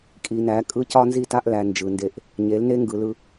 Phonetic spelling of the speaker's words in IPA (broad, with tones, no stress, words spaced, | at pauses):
kʼi˨næ˨˦ kʼɯ˦ cɒ˦nzi˦˨ta˦ʔlæ˨ nd͡ʒɯ˨nde˦˨ʔ | ɲe˨˦lne˦ ŋɡɯ˨lɯ˦